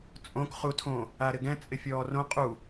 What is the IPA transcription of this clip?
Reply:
t͡sʼ õ k χ u tʰ õ | a ɾ ɪ ɡ ɛ̃ t͡sʼ ɪ fʲ ɔː r õ qʼ u

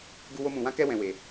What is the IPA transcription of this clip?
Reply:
ɡ u˧ w o˧ m ũ˨ w ã˧ k ɛ˧ w ɛ̃˨ w e˨

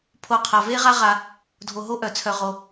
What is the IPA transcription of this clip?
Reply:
pʰ o˨ qʰ a˩ v e˦ ʁ a˦ ʁ a˨ | dʱ o˨ ɦ o˦ ʔ œ˩ t͡sʰ œ˨ ʁ o˩

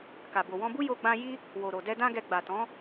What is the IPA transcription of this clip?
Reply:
k a˨ b o˨ w ɔ̃˧ b u˦ j o˧ ɡ͡b ã˧ j i˦ | w o˨ ɾ o˨ d ɛ˧ d ã˦ ɡ ɛ˧ ɡ͡b a˨ t ɔ̃˨˦

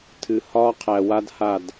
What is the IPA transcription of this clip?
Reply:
tʰ ɨ˨ h ɒː˦ qʰ æ˨ w a˦ d h a˦˨ d

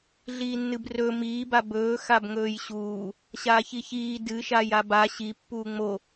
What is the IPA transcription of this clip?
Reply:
ɮ iː nː ɨ b r ɵ m iː b a b ɵː x a b ŋ ɵː j ɕ uː | ɕ aː ç i ç iː d ɨ ʃ a j a b a ɕ i pː uː ŋ͡m o

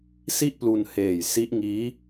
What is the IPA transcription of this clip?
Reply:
s i˥˩ ʔ p l u˧ n h eː˨˩ j s i˦˥ ʔ ŋ iː˦˥

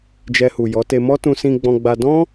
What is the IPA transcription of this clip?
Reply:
d͡ʒ ɛ˧ h u˨ j ɔ˨˦ t e˧ m ɔ˦ t ũ˧ s ĩ˧ ɡ͡b ɔ̃˧ ɡ͡b a˧ d ɔ̃˦

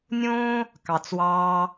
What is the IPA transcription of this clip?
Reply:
nʲ õː˦ | k ɑ˨ t͡s w ɑː˧

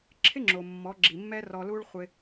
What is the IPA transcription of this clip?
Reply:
ǁʰ ɪ˥ ŋ͡ǁ o˩ mː ɔ˩˥ ɡ͡ǁ i˩ mː ɛ˥ r ɔ˧ l u˥ ɭ χʷ ɪ˧

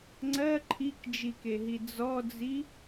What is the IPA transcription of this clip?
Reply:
ŋ͡ǀ ɜ ǃʰ i k d͡ʒ i k e ɦ i d͡z ɔ d͡z i

